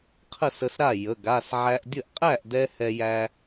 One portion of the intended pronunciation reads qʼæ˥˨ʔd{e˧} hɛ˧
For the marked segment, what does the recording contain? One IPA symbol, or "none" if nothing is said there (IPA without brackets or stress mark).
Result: ɛ˧